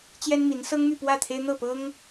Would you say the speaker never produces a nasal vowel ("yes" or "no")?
yes